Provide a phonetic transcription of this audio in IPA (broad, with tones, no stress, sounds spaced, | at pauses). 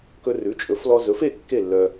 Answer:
k ɵ˧ r ʉ˩˥ t͡ʃʼ ɵ˩˥ f l ɔ˧ z ɵ˩˥ f e˥˨ kː e˥˨ lː œ˧